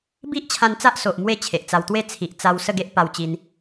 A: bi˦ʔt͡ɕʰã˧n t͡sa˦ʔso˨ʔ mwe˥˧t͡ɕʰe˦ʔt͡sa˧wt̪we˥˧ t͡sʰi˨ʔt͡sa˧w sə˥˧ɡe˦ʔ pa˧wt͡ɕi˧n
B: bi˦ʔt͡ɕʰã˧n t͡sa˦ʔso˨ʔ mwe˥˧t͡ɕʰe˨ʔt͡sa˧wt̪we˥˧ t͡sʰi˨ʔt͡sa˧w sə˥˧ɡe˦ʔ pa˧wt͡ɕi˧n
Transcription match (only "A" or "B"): B